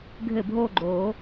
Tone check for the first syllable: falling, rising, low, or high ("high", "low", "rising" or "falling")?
falling